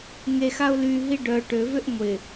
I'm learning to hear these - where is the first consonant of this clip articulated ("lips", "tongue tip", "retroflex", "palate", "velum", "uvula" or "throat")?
velum